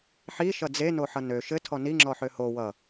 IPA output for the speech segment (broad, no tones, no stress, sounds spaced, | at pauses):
ħ i ʃ ʌ d͡z e n o ħ ʌ n ø ʃ ɘ tʰ ɔ n i ŋ͡ǁ ɔ ħ ø h o w ʌ